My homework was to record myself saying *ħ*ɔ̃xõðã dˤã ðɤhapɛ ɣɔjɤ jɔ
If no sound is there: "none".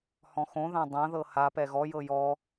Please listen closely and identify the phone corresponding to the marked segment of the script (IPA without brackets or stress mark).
h